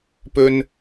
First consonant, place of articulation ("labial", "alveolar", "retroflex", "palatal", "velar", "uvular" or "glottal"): labial